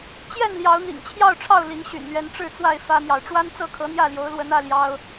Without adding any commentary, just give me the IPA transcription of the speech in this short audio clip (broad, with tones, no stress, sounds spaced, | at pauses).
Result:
t͡ɕ j ɛ˥˨ n l j ɑ˨˦ ʊ̯ n̪ ḭ˨˩ ŋ t͡ɕʰ j ɑ˥˨ ʊ̯ ʈ͡ʂʰ ɑ˥˨ ʊ̯ l i˨˦ ŋ ɕ y̰˨˩ n l ɥ ɛ˨˦ n ʈ͡ʂ ɻ̩˥˨ t͡s w a˥˨ ɪ̯ f ä˦ n̪ j ɑ˨ ʊ̯ ʈ͡ʂ w a˦ n t͡s ɤ˥˨ kʰ ɤ˨˦ n̪ j ä˥˨ l j o˨˦ ʊ̯ l w ə˨˦ n ä˦ l j ɑ˦ ʊ̯